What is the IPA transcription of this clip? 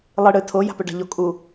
lˠ ɨ ɽ ɨ tʰ o j a̤ p ɵ ɖ a̤ ʎ o kʼ u

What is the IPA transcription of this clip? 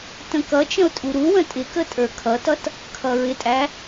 t ə̃ k ʌ t͡ʃ ə̃ ʊ̯ tʼ u ɾ u w ə̃ tʼ ɪ k ə tʼ ə˞ kʰ ʌ t ʌ t | kʰ ʌ ɹ ɪ tʼ æ

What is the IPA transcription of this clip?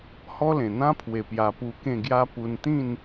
h ɔ˦ l ẽ˨˩ n̪ ã˦ pʰ w e˨˩ p j a˧ p u˧ k ẽ˥˧ ɡ j a˦ p u˧ n t̪ ĩ˥˧ n

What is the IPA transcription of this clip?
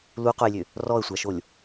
l u q o j lʲ ø | r ɔ ə̯ sʷ a ʃ o lʲ

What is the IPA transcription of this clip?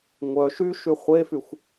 ŋʷ œ ʃ y ʃ y χʷ e f y xʷ

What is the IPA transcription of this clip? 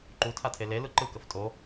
ǃ u tʰ a tʰ e l e l ɯ ǃ ɯ k ə f tʼ o

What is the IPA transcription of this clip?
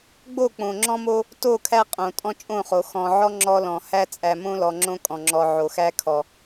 ɡ͡b o˦˨ k͡p õ˨ ŋ͡ǁ ɔ̃˦ m o˦ | t o˦˨ kʰ æ˦ qʼ õ˨ tʼ ɔ̃˦ t͡ʃʼ õ˦˨ χ o˨ x ɔ̃˨ ʕ ɔ˦ ŋ͡ǁ ɔ˦ l ɔ̃˨ h æ˦ t͡sʼ æ˨ m õ˦ l ɔ˨ ŋ͡ǁ õ˦ kʼ ɔ̃˨ ŋ͡ǁ ɔ˨ ʕ o˨ x æ˦ kʰ ɔ˨

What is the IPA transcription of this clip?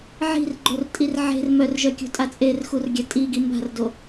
ʕ i̤ r ɡ͡ǃ o r tʼ i r ʕ e̤ r m œ r ʒ œ kʲ o̤ tʼ a t͡sʼ e r x u r ɡʲ a tʼ i ɡ i m b a̤ r d o

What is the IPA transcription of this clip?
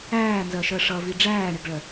æː n z ɜ ʃ ɜ ʂ ʌ v i ɖ͡ʐ æː ɳ ɪ ɡ ɭ ɜ

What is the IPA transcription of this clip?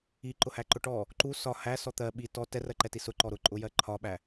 i ǃ ʊ h æ ǃ ʊ ʈ ɔ | ǃ u s ɒ h æ s ɔ t̪ ɜ ɓ i t ɔ t ɛ r ɜ ǃ ɛ t i s ʊ ǃ ɔ ɾ ʊ ǃʼ ʊ j ɜ ǃʰ ɒ ɓ æ

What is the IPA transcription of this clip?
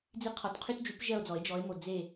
d͡z i˦˨ qʰ ɔ˨˥ t qʰ y˦ t d͡ʒ y˨˥ p ʒ ɜ˦˨ o̯ d͡z ɔ˨˩˦ e̯ d͡ʒ ɔ˨˥ e̯ m o˨ d͡z e˦˨

